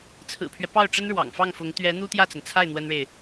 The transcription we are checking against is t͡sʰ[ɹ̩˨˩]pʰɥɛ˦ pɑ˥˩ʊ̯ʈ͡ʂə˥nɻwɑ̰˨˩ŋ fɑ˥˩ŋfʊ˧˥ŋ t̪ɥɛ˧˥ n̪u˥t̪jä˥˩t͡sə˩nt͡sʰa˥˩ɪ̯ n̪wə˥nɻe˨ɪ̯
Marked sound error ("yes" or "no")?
no